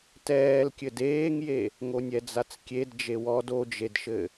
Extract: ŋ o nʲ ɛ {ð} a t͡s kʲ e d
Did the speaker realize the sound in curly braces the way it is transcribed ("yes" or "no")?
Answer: no